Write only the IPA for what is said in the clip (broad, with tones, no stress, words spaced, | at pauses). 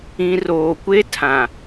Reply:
ĩ˨roː˨kʷe˦ tʰã˨